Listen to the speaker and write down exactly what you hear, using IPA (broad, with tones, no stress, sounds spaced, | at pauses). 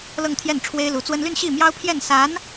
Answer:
l ɤ˥˧ ŋ t̪ʰ j ɛ˥˩ n ʈ͡ʂʰ w e˥ ɪ̯ l u˧˥ t͡s w ə˥ n l y˥˧ n ɕ i˥˩ m j ɑ˥ ʊ̯ pʰ j ɛ˥˩ n s a˧˥ n